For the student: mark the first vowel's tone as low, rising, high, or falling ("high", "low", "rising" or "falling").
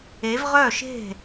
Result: rising